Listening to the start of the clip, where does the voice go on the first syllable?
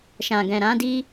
low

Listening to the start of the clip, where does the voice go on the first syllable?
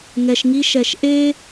low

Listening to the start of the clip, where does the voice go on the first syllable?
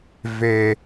high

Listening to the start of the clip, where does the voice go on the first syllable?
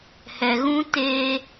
low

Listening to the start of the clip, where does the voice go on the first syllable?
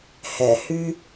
low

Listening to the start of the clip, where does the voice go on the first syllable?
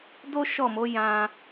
high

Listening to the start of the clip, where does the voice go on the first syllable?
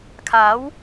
rising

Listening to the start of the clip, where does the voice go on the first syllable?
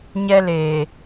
high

